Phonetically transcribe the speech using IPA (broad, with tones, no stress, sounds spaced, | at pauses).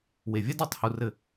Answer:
w e˨ vʲ ɛ˦ d a˨˦ tˤ h u˧ r ɘ˦˨